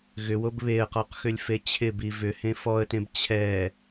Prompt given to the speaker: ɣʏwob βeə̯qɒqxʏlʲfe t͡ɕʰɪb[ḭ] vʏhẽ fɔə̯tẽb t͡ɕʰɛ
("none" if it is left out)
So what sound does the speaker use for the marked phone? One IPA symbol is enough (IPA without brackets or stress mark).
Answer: i